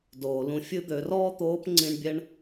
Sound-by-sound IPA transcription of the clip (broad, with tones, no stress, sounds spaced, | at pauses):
d oː˩ l ũ˧ fʲ ɨ˥ d̪ ø˩˧ r ɔː˥ t̪ oː˧˥ p ŋ͡ǀ ĩ˧ ɳ bʲ ɛ˥ ɳ